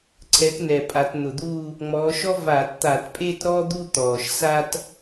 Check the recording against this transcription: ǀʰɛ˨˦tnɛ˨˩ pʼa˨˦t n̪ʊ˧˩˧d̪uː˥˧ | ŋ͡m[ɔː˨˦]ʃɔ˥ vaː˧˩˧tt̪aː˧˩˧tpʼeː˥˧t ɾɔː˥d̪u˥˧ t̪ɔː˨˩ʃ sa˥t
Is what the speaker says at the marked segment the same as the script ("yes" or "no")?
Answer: yes